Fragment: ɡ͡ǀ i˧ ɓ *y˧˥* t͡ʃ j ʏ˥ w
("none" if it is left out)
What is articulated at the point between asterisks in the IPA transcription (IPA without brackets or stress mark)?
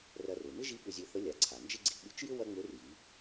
y˧˥